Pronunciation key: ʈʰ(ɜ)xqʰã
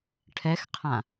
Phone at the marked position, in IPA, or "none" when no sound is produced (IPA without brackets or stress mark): ɛ